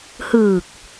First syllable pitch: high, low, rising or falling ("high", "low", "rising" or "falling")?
low